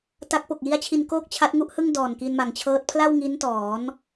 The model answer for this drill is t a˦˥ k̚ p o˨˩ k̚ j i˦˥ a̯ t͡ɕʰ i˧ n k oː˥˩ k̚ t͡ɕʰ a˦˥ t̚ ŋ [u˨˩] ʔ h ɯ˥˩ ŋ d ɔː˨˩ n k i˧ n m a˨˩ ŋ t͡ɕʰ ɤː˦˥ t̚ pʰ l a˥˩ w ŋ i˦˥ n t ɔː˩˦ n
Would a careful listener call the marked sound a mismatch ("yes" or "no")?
yes